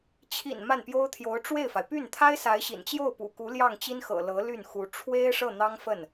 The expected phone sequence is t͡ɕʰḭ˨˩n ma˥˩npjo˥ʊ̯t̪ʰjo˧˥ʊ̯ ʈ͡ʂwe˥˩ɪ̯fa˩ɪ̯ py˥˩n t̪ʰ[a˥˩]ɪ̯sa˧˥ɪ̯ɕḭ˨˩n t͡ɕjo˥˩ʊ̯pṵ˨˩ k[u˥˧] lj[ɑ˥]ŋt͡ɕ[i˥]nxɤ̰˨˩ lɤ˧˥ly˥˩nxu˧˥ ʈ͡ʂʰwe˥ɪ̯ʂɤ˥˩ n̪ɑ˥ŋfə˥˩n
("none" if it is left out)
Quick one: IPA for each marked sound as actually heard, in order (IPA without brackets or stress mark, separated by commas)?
a˥, u˧˥, ɑ˥˩, i˥